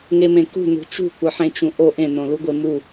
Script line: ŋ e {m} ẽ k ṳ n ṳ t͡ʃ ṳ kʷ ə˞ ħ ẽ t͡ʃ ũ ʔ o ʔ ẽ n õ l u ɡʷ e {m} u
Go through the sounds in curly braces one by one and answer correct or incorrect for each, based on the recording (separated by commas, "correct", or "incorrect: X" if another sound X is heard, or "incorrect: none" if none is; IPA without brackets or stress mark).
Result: correct, correct